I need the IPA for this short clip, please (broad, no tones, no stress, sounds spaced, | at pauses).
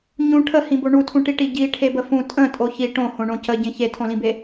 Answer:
ɲ ũ ʈʰ ə h ĩ b o ɳ u tʰ ũ ʈ i ʈ i ɟ i ʈʰ e b ə f ũ tʼ ə̃ tʼ o ç i ʈ õ h õ ɳ õ c ə ɟ ẽ ç e tʰ õ l ĩ b e